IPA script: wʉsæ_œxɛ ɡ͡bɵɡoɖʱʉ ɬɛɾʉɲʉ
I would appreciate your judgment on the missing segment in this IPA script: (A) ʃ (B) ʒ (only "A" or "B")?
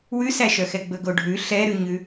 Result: A